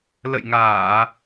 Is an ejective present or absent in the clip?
absent